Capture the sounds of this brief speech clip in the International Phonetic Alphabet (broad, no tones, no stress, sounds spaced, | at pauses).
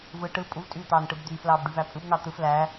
v ɯ ʈ ɯ pʼ u v tʼ yː t̪ ɑː n ʈ ɯ b d̪ yː f l ɑː b ɖ y v æ pʼ ɯ b n ɑ t̪ ɯ f l æ